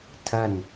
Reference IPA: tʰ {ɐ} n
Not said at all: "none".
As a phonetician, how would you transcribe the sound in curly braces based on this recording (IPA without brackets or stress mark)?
ɐ